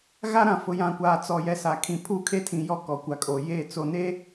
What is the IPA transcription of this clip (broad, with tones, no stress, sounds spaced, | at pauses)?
ɣ a˦ ɾ ã˨ f ʊ˨ j ã˨ kʷ aː˨ t͡s ɔ˨ j ɛ˨ s a˨ kʰ ĩ˨ pʰ uː˦ kʰ e˦ tʰ ĩ˨ j ɔ˦ k ɔ˨ kʷ a˨ kʼ o˨ j e˦˨ t͡s o˨ n e˦